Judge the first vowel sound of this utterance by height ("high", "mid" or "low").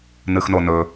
high